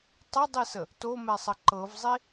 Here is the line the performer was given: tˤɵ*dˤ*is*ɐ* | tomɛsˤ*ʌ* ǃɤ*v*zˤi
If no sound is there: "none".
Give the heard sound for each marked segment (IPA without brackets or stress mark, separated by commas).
dˤ, ə, ə, v